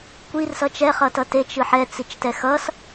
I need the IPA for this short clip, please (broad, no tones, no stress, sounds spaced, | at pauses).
kʷ i r s ʌ t͡ʃ ɛ χ ʌ t ʌ t e t͡ʃ ɯ ħ ɛ t͡s i t͡ʃ t ɛ x ʌ s